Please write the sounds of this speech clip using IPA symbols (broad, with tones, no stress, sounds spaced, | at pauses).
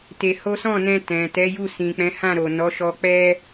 t e˧ h o˦ s ɔ̃˦˨ n ɛ̃˧ t ɛ̃˨ t ɛ˨˦ j u˦˨ s ĩ˨ k͡p ɛ̃˨˦ h ã˦˨ ɾ o˨ n ɔ˨˦ ʃ ɔ˧ k͡p ɛ˦